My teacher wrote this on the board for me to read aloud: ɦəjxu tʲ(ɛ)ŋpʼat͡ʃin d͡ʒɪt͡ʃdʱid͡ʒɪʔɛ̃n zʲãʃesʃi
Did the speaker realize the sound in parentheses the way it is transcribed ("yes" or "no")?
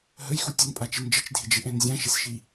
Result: no